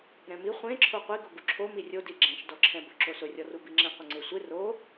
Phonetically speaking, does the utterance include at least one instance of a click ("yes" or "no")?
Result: yes